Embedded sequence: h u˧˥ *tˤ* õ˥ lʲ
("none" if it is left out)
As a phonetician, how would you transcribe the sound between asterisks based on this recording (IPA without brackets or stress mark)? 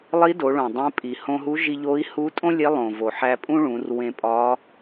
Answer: tʼ